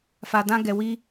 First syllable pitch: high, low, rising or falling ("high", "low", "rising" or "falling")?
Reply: low